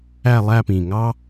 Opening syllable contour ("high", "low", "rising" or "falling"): falling